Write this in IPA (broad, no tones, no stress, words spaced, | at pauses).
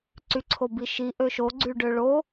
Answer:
ǀyǀʰobiʃi ʔøʃoɡ͡ǀyɖø ɭo